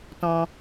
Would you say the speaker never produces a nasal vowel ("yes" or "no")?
no